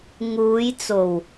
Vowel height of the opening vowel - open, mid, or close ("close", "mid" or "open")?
close